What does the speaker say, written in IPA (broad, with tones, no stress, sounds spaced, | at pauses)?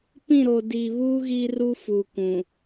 p ĩ˦˨ ɾ o˨ d i˨ β u˦ ɣ i˦ r u˦ f u˨ kʷ ũ˨